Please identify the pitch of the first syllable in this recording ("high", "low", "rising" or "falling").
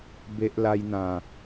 high